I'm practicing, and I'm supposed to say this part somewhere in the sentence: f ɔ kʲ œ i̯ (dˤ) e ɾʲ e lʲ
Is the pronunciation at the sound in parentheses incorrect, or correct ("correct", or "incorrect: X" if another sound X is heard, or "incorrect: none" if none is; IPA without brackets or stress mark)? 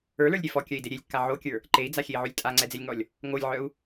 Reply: incorrect: d